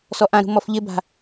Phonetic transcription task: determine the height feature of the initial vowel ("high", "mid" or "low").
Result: mid